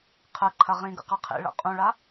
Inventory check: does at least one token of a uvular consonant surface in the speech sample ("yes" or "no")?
yes